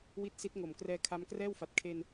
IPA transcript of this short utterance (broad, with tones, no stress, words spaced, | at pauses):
wi˥˩t̚ si˦˥t̚ŋo˨˩mkrɛː˧ kʰa˦˥m krɛː˥˩wfa˨˩t̚ kʰe˧n